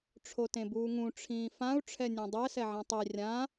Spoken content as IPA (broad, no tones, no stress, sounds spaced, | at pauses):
ʈ͡ʂʰ o t ẽ b uː ŋ ũ ʈ͡ʂʰ ĩː f ã u̯ ʈ͡ʂʰ ɛ nʲ ɛ̃ dˤ ɛ s ɛ ʕ ẽ tˤ i rʲ ã